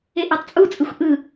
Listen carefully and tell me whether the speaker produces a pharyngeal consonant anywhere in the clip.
no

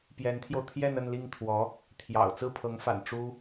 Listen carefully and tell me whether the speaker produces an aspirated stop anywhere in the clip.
yes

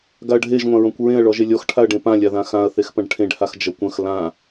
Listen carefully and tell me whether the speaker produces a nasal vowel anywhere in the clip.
yes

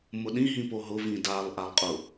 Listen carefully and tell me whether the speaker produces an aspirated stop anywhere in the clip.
no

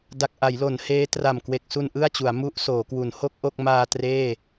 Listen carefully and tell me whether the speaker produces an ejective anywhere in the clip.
no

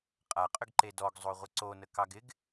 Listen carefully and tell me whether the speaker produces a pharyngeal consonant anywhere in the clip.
no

